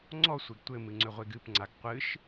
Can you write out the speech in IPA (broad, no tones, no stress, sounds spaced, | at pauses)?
ŋ͡ǀ ɔ sʷ e ɡ tʷ ɘ m ɨ ŋ͡ǀ ʏ ʁʷ e ɡ ɨ p ŋ͡ǀ a ɡ qʷ ɨ ʃ